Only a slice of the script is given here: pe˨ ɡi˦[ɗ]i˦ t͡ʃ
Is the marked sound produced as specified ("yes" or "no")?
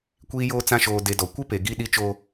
yes